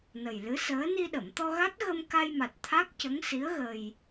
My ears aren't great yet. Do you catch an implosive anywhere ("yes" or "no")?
yes